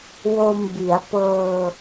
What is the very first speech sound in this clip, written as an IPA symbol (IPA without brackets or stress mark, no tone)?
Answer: w